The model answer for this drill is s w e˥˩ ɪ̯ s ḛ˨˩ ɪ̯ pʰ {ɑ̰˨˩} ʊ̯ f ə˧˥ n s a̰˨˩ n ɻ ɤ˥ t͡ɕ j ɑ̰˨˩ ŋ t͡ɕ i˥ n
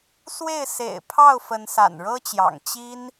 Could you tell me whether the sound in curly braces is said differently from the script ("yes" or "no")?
yes